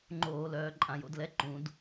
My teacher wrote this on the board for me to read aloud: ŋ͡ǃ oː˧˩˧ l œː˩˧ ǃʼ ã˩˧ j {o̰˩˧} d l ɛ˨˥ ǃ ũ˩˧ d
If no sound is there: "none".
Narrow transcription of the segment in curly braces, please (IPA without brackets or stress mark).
o̰˩˧